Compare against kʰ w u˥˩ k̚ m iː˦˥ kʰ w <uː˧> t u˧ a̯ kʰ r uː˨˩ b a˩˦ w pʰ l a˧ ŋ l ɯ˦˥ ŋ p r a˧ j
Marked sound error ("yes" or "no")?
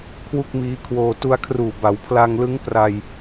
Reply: yes